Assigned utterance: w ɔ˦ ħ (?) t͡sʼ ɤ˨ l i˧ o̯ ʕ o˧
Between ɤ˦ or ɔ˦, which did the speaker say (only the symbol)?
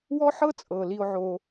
ɤ˦